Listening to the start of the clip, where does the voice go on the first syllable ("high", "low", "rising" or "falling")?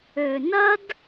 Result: low